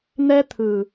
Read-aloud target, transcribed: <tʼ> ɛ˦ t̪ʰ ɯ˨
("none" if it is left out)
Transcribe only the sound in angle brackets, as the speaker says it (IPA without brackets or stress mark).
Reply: n̪